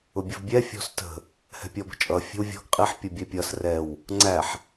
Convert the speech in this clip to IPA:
ʊ bʲ ə v bʲ ɛ fʲ ɔ̤ s t ə̤ | h ɛ̤ pʲ ɔ b ə̤ t͡ʃʼ ʌ fʲ ə̤ w vʲ ɔ̤ ɡ qʼ i ħ pʲ ʌ bʲ ɛ pʲ ʌ s r ɛ w | ŋ͡ǀ æ ħ

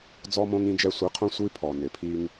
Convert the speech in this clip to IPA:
d͡z ɔ˧ m õ˧ ŋ ĩ˧ d͡ʒ ɛ˧ sʷ i˨˦ qʰ õ˦ sʷ i˦ pʰ ɔ˨ n ɪ˨ pʰ i˦ ŋ

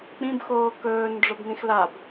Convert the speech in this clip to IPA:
k͡p ĩ b x oː k ɵː n ɖ͡ʐ o b n ĩ x l a b

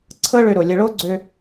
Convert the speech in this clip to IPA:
ǀʰ ɤ˥ ɭ ø˧ ɾ o˩ lʲ ɐ˧ ɭ o˥ ɡ͡ǀ ø˧

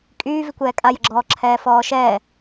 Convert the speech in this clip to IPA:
kʼ yː v i kʷ ɛː kʼ a j ə ɡ͡ǁ ɔː ǁʰ ɛː f ɔː ʃ ɛː

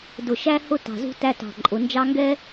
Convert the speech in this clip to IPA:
d ʊ˧˩ ʃ æ˥ h ʊ˥ t ɑ̤˧˩ z ṳ˥ t æ˥ t ɑ̤˧˩ ǃʼ ʊ˩˧ n d͡ʒ ɑ˥ ŋ ɡ ɛ˥

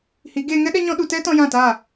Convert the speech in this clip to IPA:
h i˨˦ ɡ eː˧ ŋ ɛ˦ ɗ ɛ˦ ɲ ɔ̃˦ ɗ u˧ t ɛ˦ t ɔ̃˧ j ã˦˨ t a˦˨

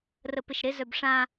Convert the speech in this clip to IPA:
r ə p ɪ ʃ ɾ ɪ z œ b ʂ ã

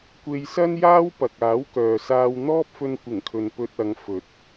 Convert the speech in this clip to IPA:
kʷ e˧ j s ɐ˥ n j aː˥ w p ɐ˨ k̚ aː˨˥ w k œː˨ s aː˧ w n̪ ɔː˥ p̚ f ɵ˧ n kʷ ɪ˨˩ ŋ kʰ ɵ˨ n p ɵ˧ t̚ ɐ˨˧ ŋ f ɵ˨˥ t̚

